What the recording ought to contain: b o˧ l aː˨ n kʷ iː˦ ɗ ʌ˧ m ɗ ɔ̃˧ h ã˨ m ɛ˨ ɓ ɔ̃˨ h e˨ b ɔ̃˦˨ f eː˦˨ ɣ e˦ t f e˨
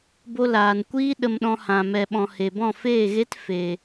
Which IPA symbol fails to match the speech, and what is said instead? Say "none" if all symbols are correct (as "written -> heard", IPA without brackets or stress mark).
ʌ˧ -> ə˧